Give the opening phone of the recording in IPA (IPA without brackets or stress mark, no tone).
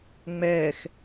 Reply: ŋ͡m